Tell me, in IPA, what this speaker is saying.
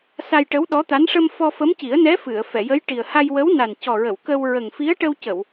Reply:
s a˧ j ʈ ə˧˥ w ɗ ɔ˧˥ t̪ a˧˥ n ʂ ə˧ m f ɔ˧ f ə˧˥ m c i˨˩˦ ə̯ n ɛ˧˥ f ɨ˨˩˨ ə̯ f ɛ˨˩˨ j ə˧˥ j ʈ i˨˩ ə̯ h a˧ j w ə˧˥ w n a˨˩ n c ɔ˨˩ ɹ ə˨˩˨ w k ə˧ w ɹ ə˨˩ ŋ f i˧˥ ə̯ ʈ ə˧ w c ə˨˩˨ w

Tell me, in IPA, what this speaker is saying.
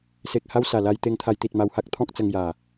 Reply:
s e˨ k̚ h a˧ w s a˨˩ l a˧ j t̪ e˧ ŋ t̪ʰ a˧ j t̪ i˨ t̚ m a˧ w h a˦ k̚ t̪ʰ ɔ̃˦ k̚ t͡s ə˧ ŋ j a˨˩

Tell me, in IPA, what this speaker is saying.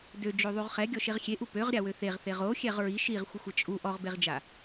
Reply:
d ø d͡ʒ o ðˤ u ʁ χ ɛ ɡʲ ɔ ʃ e ʁ xʲ e ʔ u p ø ʁ ɾʲ a w ø θ e ʁ θ e ʁ o xʲ ɛ ʁ ɹ i ʃ i ʁ xʷ ə xʷ ə t͡ʃʼ u ʔ ɔ ʁ b e ʁ d͡ʒ a

